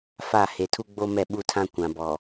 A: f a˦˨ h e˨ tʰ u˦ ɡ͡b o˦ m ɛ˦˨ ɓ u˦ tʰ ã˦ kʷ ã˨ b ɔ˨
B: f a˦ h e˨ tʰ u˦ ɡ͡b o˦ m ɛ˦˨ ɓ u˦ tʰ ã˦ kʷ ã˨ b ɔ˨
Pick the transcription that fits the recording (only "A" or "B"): A